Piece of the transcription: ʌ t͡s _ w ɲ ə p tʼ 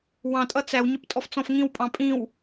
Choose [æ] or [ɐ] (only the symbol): æ